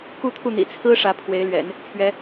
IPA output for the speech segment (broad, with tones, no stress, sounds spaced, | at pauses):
k u˥˧ t̪ʰ u˥˩ n̪ ḭ˨˩ t͡sʰ ɹ̩˥ ʂ ä˧˥ pʰ w e˧˥ ɪ̯ l ɥ ɛ̰˨˩˦ n | pʰ ɥ ɛ˥